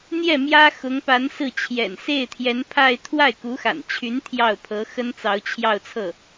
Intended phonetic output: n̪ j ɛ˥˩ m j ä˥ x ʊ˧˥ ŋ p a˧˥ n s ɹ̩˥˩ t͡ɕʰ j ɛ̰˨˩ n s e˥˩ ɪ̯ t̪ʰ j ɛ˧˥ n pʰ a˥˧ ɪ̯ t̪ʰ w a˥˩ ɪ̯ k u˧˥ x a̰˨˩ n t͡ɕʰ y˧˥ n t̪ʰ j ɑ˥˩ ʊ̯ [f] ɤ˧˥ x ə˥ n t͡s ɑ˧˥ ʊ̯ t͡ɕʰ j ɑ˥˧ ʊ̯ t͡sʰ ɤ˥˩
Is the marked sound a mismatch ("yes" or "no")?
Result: yes